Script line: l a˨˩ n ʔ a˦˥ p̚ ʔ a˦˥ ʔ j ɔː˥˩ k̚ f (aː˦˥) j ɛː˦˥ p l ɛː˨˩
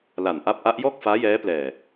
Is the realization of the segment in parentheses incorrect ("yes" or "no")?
no